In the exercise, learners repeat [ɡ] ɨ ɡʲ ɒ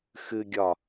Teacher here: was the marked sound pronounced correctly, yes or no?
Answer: no